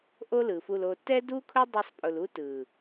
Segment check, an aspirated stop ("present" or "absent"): present